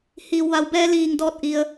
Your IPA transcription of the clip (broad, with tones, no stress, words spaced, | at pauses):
hiː˩wʋa˩˧w bɛː˧liː˩ŋ dɔː˥˨t̚ʔi˧ə̯